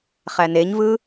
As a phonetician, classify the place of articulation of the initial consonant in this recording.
uvular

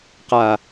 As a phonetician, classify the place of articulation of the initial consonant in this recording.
uvular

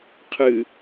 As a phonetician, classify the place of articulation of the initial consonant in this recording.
uvular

